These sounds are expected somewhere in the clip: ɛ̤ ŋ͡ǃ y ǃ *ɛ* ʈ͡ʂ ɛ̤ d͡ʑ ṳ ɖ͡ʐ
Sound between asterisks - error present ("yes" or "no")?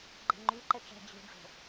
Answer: no